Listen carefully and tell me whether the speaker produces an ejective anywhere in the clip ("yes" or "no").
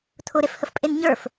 yes